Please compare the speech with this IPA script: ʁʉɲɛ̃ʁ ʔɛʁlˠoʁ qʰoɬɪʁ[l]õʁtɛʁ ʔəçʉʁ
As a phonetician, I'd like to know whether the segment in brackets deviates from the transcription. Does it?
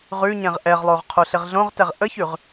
yes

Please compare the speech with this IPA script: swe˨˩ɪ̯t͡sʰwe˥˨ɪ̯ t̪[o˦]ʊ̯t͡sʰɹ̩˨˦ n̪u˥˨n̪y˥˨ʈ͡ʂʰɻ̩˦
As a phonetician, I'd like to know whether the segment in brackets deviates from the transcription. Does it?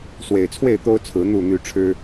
no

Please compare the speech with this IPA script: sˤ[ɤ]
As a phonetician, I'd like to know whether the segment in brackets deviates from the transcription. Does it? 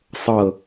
no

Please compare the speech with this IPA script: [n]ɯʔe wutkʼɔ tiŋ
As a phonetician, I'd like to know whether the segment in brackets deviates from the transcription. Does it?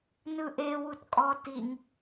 no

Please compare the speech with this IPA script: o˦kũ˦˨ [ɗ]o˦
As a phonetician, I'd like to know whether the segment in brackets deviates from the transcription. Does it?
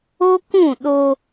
no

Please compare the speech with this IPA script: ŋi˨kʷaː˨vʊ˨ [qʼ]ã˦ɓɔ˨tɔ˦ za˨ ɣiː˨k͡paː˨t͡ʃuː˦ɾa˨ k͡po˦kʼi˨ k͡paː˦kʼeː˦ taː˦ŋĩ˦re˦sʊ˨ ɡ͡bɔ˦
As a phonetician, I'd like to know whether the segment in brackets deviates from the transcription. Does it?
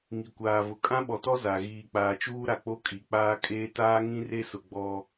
yes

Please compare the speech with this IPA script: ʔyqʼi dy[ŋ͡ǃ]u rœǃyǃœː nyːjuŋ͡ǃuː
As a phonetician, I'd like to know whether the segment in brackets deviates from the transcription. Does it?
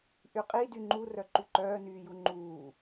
no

